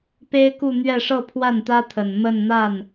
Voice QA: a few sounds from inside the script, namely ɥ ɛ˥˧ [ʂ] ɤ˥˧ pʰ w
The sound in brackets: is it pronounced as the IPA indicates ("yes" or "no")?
yes